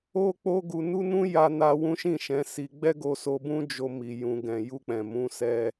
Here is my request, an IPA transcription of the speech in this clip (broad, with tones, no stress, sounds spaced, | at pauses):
o˦ k͡p o˦ ɡ u˧ n u˦ n ũ˦ j a˧ n a˧ w ũ˦ ʃ ĩ˦˨ ʃ ɛ̃˨˦ s i˧ ɡ͡b ɛ˦ ɡ o˧ s o˧ b ũ˦ d͡ʒ o˧ m i˨ j ũ˧ ɡ ɛ̃˨ j u˧ k͡p ɛ̃˨ m ũ˨˦ s ɛ˦